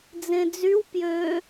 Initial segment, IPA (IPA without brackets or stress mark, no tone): d͡z